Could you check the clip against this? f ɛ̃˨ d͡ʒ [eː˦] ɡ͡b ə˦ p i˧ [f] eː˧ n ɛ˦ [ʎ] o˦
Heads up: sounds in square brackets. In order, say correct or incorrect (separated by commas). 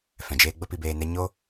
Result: correct, incorrect, incorrect